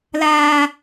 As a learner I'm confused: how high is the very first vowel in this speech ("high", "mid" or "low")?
low